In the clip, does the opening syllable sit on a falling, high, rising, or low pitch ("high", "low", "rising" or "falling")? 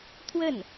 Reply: falling